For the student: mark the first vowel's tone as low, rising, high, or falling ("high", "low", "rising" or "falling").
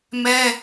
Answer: high